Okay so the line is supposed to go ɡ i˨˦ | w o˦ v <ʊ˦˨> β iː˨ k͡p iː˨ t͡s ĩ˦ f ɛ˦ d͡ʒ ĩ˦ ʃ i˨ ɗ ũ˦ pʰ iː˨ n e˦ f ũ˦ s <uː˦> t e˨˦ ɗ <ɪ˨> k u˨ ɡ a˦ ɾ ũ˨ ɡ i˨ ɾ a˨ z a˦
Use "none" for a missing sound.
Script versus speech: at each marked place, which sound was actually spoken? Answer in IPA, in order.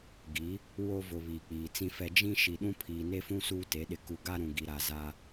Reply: ʊ˨, uː˦, ɪ˨

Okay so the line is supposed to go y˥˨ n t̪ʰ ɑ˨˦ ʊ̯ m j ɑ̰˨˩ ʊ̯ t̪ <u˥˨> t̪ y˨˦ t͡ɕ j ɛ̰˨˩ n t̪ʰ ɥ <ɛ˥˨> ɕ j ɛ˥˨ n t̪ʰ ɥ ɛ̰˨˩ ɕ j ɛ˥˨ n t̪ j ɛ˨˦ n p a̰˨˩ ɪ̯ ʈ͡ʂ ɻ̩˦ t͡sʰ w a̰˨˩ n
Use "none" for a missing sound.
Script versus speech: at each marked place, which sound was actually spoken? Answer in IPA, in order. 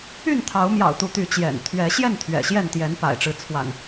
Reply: u˨˦, ɛ˨˦

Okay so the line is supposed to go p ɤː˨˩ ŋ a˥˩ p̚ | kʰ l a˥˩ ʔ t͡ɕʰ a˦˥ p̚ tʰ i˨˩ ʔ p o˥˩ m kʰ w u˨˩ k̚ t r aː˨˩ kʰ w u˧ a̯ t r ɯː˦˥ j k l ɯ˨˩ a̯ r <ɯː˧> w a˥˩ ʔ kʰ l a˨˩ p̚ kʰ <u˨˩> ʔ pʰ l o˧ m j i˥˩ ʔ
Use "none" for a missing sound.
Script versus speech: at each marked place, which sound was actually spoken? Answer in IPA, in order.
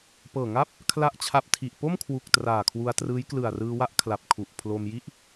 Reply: ɯː˧, u˨˩

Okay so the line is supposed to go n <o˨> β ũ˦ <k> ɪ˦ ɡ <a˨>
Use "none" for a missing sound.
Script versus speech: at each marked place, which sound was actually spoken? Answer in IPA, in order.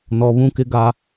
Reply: ɔ˨, k, a˦

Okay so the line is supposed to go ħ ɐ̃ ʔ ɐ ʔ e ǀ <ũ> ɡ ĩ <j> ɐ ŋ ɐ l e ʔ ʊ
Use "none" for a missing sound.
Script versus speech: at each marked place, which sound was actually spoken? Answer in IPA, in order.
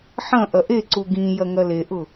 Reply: u, j

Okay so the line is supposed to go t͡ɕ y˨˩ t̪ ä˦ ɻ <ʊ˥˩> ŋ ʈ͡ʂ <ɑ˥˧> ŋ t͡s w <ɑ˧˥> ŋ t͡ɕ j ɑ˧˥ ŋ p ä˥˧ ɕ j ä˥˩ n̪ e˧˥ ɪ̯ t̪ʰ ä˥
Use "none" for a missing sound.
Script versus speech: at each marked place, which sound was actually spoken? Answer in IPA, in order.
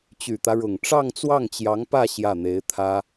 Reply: ʊ˨˩, ɑ˥˧, ɑ˥˩

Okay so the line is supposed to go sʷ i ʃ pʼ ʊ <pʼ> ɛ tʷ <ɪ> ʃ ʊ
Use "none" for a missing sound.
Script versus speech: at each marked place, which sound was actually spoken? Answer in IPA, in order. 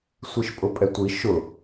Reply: pʼ, i

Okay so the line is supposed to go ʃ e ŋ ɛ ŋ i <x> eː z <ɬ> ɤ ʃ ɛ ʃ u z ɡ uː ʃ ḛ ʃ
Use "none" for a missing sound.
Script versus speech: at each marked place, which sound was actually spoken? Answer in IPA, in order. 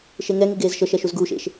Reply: ɡ, ʃ

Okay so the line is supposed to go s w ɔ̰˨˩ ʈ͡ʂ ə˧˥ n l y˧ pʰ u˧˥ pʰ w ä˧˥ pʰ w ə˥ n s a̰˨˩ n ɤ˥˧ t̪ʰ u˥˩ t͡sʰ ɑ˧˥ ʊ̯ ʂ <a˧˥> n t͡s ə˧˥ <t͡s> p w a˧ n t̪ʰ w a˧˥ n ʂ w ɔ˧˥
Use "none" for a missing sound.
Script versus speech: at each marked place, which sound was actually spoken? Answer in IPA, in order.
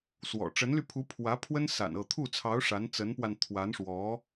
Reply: a˧˥, n

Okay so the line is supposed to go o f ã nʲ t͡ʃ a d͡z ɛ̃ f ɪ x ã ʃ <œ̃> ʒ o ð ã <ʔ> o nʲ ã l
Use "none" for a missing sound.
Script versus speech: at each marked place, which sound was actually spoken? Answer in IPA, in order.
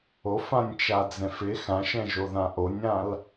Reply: ɛ̃, ʔ

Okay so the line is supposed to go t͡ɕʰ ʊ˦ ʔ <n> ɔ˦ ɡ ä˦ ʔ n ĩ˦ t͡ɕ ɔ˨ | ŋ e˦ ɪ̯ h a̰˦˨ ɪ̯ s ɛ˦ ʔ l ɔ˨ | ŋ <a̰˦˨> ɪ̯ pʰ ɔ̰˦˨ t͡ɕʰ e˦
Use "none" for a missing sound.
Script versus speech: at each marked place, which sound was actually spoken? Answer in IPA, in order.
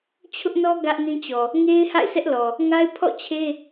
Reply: n, a˦

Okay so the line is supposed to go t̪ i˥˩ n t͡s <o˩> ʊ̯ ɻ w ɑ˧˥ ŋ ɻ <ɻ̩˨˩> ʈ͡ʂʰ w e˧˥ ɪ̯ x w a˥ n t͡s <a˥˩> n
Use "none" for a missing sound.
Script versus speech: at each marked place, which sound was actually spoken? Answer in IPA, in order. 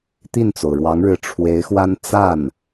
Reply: o˩, ɻ̩˧˥, a˥˩

